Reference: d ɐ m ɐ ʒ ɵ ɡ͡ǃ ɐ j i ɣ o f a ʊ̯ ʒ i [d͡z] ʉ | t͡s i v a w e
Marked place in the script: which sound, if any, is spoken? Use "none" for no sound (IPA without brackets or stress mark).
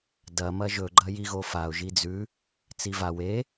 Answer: d͡z